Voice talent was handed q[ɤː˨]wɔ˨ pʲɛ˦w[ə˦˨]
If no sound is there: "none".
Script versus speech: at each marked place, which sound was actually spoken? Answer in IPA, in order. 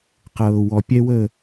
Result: ɤː˨, ə˦˨

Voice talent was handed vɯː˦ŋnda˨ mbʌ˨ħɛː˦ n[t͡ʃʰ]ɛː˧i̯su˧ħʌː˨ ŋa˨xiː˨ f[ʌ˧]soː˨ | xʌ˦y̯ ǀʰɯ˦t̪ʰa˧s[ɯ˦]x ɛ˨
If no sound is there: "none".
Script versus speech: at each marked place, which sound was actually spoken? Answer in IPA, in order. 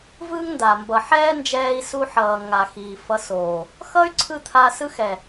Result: d͡ʒ, ʌ˧, ɯ˦

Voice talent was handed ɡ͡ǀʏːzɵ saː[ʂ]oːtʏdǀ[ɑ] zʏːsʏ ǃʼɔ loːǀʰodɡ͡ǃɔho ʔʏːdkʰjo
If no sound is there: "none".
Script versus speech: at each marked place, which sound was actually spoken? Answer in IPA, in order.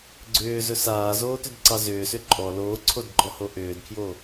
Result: z, ɑ

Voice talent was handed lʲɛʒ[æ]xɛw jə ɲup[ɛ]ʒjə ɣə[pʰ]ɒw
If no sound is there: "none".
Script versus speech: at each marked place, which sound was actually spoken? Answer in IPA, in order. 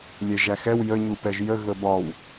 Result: æ, ɛ, b

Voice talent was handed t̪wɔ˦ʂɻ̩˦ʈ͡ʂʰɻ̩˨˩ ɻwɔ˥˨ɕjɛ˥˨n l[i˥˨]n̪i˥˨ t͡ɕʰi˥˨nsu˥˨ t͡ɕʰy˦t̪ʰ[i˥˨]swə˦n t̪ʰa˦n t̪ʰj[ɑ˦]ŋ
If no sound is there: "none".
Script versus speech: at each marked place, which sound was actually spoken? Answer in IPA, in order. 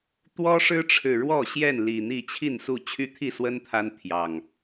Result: i˨˩, i˥˨, ɑ˨˩

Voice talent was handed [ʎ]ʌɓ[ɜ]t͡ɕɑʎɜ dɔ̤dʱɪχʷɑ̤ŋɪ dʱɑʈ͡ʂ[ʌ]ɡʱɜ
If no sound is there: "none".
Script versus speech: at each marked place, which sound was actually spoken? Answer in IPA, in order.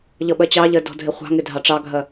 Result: ʎ, ɜ, ɑ

